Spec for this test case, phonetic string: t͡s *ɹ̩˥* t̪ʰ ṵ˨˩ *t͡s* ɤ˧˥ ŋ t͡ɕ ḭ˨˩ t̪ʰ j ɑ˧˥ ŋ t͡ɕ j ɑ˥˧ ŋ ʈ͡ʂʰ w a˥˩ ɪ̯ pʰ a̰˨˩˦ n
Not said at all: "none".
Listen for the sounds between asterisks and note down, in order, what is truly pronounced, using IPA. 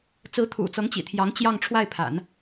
ɹ̩˧˥, t͡s

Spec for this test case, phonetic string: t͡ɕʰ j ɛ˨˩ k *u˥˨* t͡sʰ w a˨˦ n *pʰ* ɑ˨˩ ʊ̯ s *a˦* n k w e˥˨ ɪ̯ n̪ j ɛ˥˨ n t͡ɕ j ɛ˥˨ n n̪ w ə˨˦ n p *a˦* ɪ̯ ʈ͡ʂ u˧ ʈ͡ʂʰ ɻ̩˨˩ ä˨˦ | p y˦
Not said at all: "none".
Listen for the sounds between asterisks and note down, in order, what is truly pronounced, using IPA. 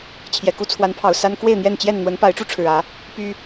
u˦, pʰ, a˦, a˨˦

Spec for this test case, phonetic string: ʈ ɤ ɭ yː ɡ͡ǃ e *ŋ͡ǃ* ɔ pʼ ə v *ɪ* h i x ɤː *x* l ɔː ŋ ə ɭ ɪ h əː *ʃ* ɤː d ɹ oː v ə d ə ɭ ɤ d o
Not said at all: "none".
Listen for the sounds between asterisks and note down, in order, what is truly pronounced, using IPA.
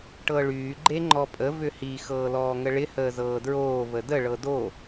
ŋ͡ǃ, ʏ, none, z

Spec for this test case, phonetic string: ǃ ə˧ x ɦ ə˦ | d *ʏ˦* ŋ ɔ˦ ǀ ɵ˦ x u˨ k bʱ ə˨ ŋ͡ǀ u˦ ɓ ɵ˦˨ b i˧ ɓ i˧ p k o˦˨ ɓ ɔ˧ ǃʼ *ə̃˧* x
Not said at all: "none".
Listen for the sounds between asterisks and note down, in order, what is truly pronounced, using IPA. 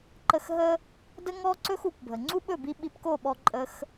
ə˦, ə˧

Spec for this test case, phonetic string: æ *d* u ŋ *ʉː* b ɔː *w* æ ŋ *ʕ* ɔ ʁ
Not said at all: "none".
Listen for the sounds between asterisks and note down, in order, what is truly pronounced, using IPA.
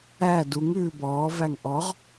d, ʉː, v, ʔ

